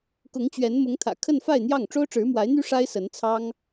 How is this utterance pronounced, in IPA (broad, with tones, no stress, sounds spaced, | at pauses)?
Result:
k ʊ˧˥ ŋ t͡ɕ ɥ ɛ˧˥ n m ʊ˧˥ ŋ t̪ʰ ä̰˨˩ kʰ ə˥˧ n f a˥˧ ɪ̯ n̪ j ɑ˥˩ ŋ ʈ͡ʂ o˥ ʊ̯ ʈ͡ʂ ɻ̩˧˥ m w a˧˥ ɪ̯ n̪ y˥ ʂ a˥ ɪ̯ s ə˧˥ n t͡sʰ ɑ˥ ŋ